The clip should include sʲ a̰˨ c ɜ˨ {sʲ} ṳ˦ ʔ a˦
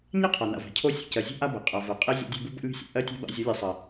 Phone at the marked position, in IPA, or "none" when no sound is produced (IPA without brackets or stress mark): zʲ